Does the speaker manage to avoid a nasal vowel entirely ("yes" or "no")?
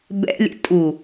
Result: yes